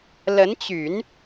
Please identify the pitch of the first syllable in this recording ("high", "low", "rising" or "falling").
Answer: rising